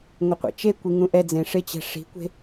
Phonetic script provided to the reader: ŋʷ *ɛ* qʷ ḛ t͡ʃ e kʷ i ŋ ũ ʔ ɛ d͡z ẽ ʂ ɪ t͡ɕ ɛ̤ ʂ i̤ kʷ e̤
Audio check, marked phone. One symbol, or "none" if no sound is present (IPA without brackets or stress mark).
ɪ